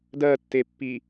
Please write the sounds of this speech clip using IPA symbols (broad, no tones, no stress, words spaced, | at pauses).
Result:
dɜtːepːi